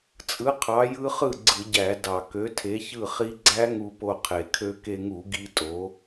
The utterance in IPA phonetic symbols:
t͡sʼɯ˨˥qʰɑ˨˥jɯ˦˥ χɯ˥˩ ɡ͡ǀɯ˧˩˧ɟæ˧˩˧ dɑ˨˩ kø˨˥tʰe˨˥çɯ˥˩χi˦˥ ɡ͡ǀæ˦˥ŋu˧po˧ qʰe˨˩kʰø˧ke˧ŋu˧˩˧ ɡi˦˥tʼo˨˥

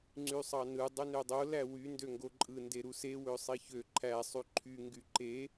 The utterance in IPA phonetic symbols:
ŋ͡ǀysˤɑnɯ dˤønødˤo læwy ndøŋɡoǃʼɯ ndeɾuse wøsˤiçø ǃʰæ sˤyǃʰy ŋɡyǃe

